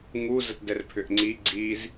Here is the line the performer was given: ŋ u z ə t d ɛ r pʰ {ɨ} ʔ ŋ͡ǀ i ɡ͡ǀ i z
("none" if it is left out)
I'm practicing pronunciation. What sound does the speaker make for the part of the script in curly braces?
ʏ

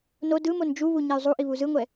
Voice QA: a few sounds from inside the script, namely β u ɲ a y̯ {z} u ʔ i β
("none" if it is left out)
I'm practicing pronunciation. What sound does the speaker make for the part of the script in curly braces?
zˤ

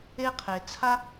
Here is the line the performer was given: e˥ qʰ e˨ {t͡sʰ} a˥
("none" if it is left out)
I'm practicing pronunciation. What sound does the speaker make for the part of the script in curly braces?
t͡sʰ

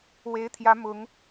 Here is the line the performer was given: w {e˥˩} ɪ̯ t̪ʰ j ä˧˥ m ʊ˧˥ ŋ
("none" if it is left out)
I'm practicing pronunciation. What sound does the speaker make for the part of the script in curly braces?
e˧˥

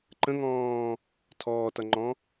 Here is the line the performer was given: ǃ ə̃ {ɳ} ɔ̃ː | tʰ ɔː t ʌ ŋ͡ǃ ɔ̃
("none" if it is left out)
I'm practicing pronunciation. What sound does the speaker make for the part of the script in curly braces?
ŋ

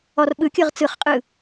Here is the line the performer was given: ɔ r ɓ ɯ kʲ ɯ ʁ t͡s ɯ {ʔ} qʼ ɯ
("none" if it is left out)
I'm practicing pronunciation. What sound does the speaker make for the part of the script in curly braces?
χ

